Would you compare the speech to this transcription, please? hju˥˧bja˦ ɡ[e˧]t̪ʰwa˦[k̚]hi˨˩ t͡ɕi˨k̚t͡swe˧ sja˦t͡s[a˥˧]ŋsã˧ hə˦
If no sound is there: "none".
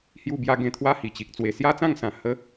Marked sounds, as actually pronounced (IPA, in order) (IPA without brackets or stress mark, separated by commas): ẽ˧, none, ã˥˧